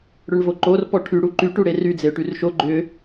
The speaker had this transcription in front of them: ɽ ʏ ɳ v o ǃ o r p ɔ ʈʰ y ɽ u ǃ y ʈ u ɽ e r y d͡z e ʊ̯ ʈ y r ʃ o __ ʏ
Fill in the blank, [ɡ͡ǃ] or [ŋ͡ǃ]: ɡ͡ǃ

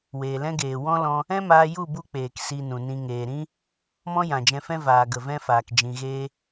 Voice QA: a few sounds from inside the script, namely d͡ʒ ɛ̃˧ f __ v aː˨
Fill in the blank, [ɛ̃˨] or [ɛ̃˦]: ɛ̃˦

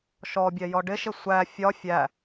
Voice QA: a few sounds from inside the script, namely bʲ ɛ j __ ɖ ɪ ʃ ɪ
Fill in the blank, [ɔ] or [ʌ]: ɔ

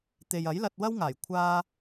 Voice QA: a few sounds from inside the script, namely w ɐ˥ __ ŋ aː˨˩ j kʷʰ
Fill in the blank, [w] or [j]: w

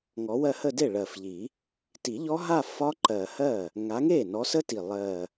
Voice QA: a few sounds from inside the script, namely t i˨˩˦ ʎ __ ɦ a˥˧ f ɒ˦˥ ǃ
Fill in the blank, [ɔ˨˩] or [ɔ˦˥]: ɔ˦˥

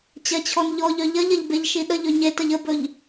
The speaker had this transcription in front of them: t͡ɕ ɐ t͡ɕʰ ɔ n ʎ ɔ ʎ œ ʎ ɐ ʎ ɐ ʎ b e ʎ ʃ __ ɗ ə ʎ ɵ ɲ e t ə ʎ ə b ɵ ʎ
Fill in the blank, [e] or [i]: i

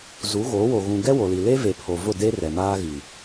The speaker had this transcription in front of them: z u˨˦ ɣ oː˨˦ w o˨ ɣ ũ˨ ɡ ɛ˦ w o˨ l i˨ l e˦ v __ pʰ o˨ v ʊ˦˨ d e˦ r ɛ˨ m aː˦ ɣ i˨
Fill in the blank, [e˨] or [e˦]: e˨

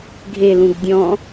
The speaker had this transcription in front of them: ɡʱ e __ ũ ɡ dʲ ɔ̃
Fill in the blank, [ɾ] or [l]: l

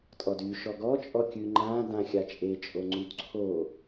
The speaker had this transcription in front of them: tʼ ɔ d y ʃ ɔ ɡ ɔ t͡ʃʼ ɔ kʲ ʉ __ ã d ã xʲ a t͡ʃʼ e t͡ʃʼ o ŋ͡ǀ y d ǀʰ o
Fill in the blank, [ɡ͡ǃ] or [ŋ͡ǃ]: ŋ͡ǃ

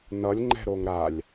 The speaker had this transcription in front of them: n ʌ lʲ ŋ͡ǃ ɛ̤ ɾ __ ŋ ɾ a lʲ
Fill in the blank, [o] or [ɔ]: o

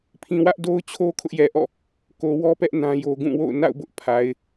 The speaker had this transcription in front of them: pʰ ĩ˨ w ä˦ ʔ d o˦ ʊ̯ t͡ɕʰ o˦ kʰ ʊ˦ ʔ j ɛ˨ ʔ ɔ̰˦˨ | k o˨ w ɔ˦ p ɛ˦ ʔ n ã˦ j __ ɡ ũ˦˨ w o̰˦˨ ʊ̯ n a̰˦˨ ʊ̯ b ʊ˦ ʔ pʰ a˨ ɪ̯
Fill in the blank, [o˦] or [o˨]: o˦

